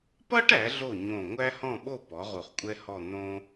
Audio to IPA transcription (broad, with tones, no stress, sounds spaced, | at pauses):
p ʌ˥ ʈ æ˩˧ ɮ o˧˩ ɲ õ˧˩ ŋʷ æ˥ h ɔ̃˥˧ ɓ o˥˧ p ɔ˩˧ ʁ u˧˩ χ kʷʼ ɛ˥ h ɔ˥˧ n̪ õ˧